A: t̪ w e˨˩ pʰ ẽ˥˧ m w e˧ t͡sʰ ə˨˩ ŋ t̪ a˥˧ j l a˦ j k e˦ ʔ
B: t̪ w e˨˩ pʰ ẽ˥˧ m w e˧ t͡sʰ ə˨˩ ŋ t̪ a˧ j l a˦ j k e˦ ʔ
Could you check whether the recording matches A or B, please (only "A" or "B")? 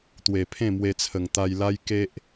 B